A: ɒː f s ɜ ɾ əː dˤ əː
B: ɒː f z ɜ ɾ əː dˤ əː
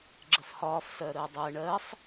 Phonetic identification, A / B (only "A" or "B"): A